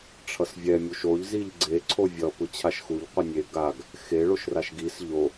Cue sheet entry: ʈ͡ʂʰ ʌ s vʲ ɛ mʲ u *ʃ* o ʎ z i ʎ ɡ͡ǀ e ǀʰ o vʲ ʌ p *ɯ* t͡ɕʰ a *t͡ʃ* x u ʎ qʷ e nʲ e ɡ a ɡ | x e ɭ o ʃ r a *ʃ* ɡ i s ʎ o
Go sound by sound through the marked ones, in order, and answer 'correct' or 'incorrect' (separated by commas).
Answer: correct, correct, incorrect, correct